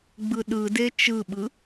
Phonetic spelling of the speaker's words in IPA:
ɡ͡b ɯ ɗ ɯ d e t͡ʃ ɯ ɓ ɯ

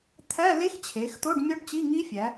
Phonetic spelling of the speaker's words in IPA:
t̪ʰ æ˧˥˧ l e˦˥ x t͡ɕʰ e˩˧ x t̪ o˧˥˧ ɖ mʲ ɒ˦˥ ɖ t͡ɕ i˧˥˧ ŋ i˦˥ fʲ æ˩˧

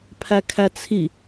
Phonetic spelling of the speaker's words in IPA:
pʰ æ kʰ æ t͡sʰ i

